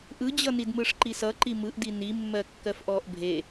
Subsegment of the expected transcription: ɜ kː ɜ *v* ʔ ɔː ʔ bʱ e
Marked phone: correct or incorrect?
incorrect